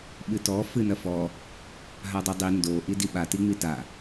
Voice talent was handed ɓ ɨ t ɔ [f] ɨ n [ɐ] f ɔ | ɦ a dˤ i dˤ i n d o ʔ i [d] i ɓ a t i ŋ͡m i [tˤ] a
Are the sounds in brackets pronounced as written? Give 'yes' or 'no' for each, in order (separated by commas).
yes, yes, yes, no